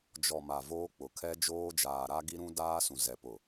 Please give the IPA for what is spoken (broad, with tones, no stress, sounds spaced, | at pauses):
d͡ʒ ɔ˨ m a˨ v oː˦ k͡p ʊ˨ kʰ ɛ˦ d͡ʒ oː˦ d͡ʒ aː˨ ɾ a˦ ɡ i˦ ɾ ũ˦ d aː˦ s ũ˨ z ɛ˨ p ʊ˨